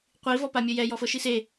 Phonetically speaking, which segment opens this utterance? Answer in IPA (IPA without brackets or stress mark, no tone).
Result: qʷ